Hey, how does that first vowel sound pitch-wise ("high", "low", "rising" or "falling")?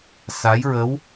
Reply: rising